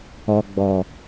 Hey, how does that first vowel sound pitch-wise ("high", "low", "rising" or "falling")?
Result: low